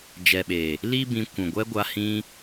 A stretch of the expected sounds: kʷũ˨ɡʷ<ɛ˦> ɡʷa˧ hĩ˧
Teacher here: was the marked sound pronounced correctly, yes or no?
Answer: yes